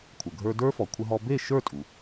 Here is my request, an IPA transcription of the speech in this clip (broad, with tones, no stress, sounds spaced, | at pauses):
kʷʰ ə˩ ɡʱ ə˞˧ d ə˞˦˥ f ɔ˩ kʷʰ ə˧ ɦ ɔ˧ b e˥˩ ʃ ə˞˥˩ tʼ u˩